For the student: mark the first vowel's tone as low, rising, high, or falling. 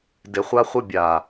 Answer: low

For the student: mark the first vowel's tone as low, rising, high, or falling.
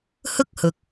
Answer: high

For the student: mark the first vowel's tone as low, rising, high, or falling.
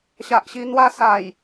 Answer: low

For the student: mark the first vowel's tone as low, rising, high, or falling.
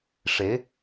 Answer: rising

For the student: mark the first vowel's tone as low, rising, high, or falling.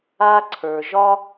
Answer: high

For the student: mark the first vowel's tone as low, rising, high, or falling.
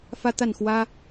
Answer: high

